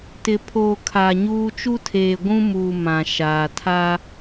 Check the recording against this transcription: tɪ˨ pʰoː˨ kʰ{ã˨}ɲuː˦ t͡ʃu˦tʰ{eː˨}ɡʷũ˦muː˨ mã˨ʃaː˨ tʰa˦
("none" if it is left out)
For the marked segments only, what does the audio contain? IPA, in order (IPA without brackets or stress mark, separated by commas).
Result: a˨, eː˨